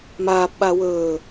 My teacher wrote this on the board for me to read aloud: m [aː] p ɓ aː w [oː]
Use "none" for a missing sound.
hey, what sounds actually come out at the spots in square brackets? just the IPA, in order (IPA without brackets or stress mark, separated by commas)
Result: aː, ɵː